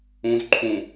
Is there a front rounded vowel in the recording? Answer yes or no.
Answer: no